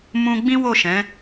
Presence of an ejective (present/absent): absent